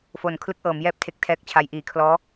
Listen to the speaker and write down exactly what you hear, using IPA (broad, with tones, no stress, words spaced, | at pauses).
fo˨˩n kʰlɯ˦˥k̚ʔɤː˩˦mjɛː˥˩p̚ tʰe˥˩k̚tʰɛː˥˩k̚t͡ɕʰa˦˥j ʔiː˩˦kʰlɔː˦˥